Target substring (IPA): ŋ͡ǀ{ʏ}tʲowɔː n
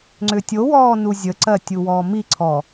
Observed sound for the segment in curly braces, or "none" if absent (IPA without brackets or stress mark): ʏ